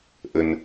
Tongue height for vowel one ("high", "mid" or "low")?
mid